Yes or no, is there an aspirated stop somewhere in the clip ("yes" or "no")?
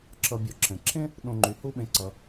yes